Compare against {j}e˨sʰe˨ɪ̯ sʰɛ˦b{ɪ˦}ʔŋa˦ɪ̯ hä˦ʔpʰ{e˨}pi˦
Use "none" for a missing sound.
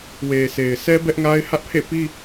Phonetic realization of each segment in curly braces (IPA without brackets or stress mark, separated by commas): w, ɛ˦, ḛ˦˨